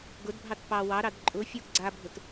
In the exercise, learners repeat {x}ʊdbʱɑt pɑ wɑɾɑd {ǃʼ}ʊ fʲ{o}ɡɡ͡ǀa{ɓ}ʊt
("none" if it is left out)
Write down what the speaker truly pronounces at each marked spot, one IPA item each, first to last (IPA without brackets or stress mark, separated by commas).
ɡ, ǃʼ, o, bʱ